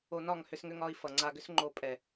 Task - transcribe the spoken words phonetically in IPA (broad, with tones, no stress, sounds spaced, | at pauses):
o˧ n ɒ˦˨ ŋ h ʏ˧ s ŋ ʏ˧ ŋ ɒ˧ i̯ f ʌ˨ ŋ͡ǀ a˧ ɡ ʏ˦ s ŋ͡ǃ o˨ pʼ ɛ˨